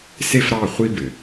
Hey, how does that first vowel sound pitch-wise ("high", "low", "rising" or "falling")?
high